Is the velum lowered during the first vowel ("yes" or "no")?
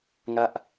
no